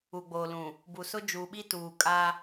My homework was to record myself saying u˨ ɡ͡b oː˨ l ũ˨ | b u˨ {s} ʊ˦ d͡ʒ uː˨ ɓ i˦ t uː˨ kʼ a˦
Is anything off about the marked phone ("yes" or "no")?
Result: no